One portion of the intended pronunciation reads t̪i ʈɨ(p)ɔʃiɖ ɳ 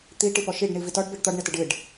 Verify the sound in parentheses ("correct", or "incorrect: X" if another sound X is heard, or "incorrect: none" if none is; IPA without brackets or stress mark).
correct